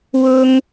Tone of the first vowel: high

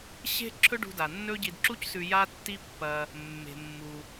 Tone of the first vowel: high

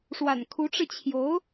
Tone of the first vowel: low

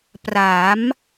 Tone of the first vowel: rising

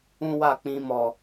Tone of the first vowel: high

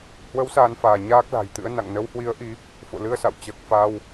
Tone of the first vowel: rising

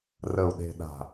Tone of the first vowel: low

